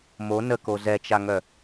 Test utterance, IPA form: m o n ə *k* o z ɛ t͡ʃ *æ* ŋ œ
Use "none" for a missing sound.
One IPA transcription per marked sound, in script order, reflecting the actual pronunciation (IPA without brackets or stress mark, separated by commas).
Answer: k, a